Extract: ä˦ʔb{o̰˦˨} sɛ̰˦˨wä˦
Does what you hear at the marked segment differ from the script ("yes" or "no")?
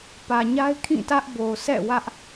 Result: yes